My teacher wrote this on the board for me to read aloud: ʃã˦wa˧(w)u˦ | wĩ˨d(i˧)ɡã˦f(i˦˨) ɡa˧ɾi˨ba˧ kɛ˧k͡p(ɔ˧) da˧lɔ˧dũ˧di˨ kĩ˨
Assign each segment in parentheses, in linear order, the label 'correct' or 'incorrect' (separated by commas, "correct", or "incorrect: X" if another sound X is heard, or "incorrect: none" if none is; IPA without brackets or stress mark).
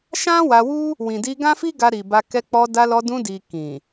correct, correct, incorrect: i˦, correct